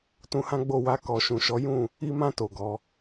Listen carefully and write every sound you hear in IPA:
tũ˧hã˦ɡ͡bo˦˨ wa˧ kɔ˨ʃũ˨ʃɔ˨˦ jũ˦˨ | i˧mã˧ to˨ɡɔ˨˦

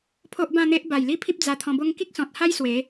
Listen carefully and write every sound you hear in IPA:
pʰo˦ʔbã˥˧n̪e˦ʔ ba˨˩jli˦pʰi˦p̚ d͡za˧t̪ʰɔ̃˧bo˦ŋ ki˦k̚sɔ̃˨t̚ha˦j swe˨˦

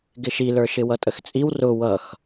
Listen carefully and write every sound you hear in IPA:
ɡɪʃilə˞ʃɪ wʌtʼəxt͡sʼiw rʊ wʌx

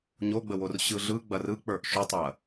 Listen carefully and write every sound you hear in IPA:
ɲoɡ͡bəwor ɕɯɮɯ ɡ͡bɐrɯk͡pə˞ʔ ʃʏtˤɐ

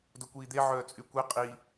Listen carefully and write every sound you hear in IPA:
dokʷiːd̪e ʕœːt͡sʼykʷe qʼi

